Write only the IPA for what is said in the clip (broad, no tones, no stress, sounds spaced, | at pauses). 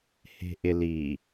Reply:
h e̤ ʔ ɪ l i